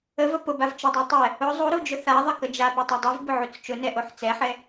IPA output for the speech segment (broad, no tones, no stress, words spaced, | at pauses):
əvə pʊbav t͡ʃədˤa tˤɛ | ʊ zˤuɾud͡ʒʊ θaðˤəkə d͡ʒapotˤo dˤuvbʊʕut͡s t͡ʃʊnɛʔoħ t͡sɛħɛ